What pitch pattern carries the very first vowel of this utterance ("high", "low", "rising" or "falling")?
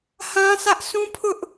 high